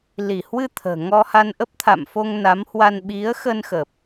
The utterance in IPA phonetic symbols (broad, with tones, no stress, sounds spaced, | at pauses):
l i˧˩ h w ɨ˧ t̪ʰ ə̤ː˨˩ ŋ ɔ˧ h a˧ n ʔ ə˦˥ p̚ t̪ʰ a̰˧˨ m f o˧ ŋ n a˨˦ m h w a˧ n ɓ i˨˦ ə̯ x ə˧ n x ə˨˩ p̚